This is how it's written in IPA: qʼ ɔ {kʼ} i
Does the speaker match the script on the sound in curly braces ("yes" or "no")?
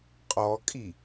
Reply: yes